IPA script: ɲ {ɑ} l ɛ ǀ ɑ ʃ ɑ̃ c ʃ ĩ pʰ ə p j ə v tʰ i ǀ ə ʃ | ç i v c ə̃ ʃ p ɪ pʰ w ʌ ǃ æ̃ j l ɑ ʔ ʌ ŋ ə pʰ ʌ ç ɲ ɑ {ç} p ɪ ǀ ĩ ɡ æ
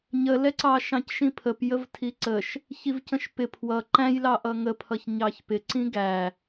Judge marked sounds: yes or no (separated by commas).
no, yes